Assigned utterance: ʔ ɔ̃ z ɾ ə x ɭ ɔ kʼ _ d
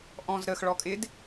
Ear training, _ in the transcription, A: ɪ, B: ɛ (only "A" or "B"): A